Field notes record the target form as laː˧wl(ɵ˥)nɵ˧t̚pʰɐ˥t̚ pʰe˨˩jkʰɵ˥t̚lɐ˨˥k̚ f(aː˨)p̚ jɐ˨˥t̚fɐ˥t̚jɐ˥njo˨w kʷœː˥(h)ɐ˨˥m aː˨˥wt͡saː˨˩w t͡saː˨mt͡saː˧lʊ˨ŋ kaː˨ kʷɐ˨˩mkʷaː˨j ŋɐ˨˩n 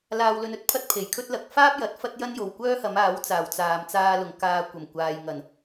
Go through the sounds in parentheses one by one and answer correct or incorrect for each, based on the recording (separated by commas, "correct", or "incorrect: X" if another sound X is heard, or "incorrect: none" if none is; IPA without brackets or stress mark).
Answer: incorrect: ɵ˧, incorrect: aː˥, correct